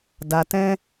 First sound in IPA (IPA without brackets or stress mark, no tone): d